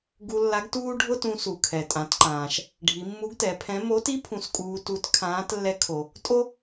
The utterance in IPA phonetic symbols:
ɡ u˧ lː a˧˥ ɡ t uː˥ ɖʱ ʊ˥ t ũ˧ s u˩ kʰ ɛ˩ tʼ ã˩˧ t ǃ ãː˩ ʃ | ɖʱ i˩˧ mː u˧˥ ɡ t ɛ˩˧ pʰ ɛ̃˧˥ m o˧˥ t i˥ pʰ ũ˧ s kʼ uː˧ t u˧˥ t kʰ ãː˧˥ t lː ɛ˧˥ kʰ o˩ | tʼ o˥

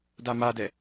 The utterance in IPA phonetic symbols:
d a m a d ɛ

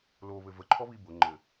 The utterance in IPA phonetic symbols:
l o β ɘ v ə ǃʰ ɔ β i b ʊ ŋ͡ǃ ɘ

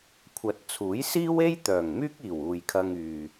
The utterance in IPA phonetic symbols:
kʷʰ ɐ˨ t̚ t͡sʰ uː˨˥ j s iː˥ w e˥ j t̪ œː˨˩ ŋ m yː˥ k̚ iː˨˩ w uː˨ j kʰ ɐ˧ ŋ yː˨

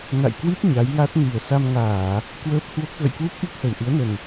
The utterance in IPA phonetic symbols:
n a̰˧˨ j k w i˦˥ p̚ ɲ a˨˦ j ŋ a˦˥ t̚ n i˨˩ ə̯ s a˧ m ŋ aː˧˩˨ | k w əː˦˥ p̚ h w o˦˥ k̚ ɣ ə̰˧˨ j k w u˦˥ p̚ ʔ i˦˥ k̚ h ə˨˩ w ʔ ɨ˨˦ ə̯ n ə˨˩ n

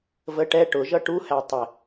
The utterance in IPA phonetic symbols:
v ə ʈ ɛ ʈ ʊ ʒ ʌ ʈ u h æ tˤ ɪ

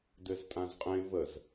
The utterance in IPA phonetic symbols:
d ɘ z tʼ ã z qʼ ẽ v ə z

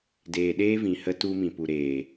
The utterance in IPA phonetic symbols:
d eː˨ ɗ eː˦ v ĩ˨ h ə˧ t u˧ m ĩ˨ p u˨ ɾ eː˨

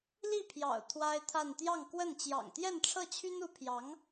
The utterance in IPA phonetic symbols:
l i˥˩ pʰ j ɑ̰˨˩ ʊ̯ t̪ʰ w a˥ ɪ̯ t̪ʰ a˥˧ n t̪ j ɑ˥˧ ŋ k w ə˥˩ n t͡ɕ j ɑ̰˨˩ ŋ t̪ j ɛ˥˧ n ʈ͡ʂʰ ɤ˥˩ t͡ɕʰ y˥ n u˧˥ pʰ j ɑ˧˥ ŋ

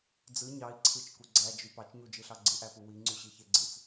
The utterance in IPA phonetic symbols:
d͡z ɯ ɲ ɑ i̯ ǀʰ ɯ t͡ʃ k u ɡ͡ǀ æ d͡ʒ y p ɑ t͡ʃ ɲ u d͡ʒ ɯ ɬ ɑ ɡ͡ǀ ɯ ʔ æ p u w i ŋ͡ǀ y ɕ i ç e ɡ͡ǀ ɯ t͡s

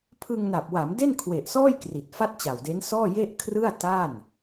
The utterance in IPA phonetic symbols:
pʰ ɯ˧ ŋ n a˨˩ p̚ w a˩˦ m d e˥˩ n kʰ w e˨˩ ʔ s ɔː˥˩ j k r i˨˩ t̚ f a˥˩ t̚ t͡ɕ a˨˩ w d e˦˥ n s ɔː˥˩ j e˥˩ ʔ kʰ r ɯ˥˩ a̯ t a˥˩ n

